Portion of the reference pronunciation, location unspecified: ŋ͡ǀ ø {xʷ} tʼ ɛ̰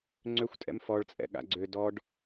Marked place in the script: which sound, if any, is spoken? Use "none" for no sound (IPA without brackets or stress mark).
xʷ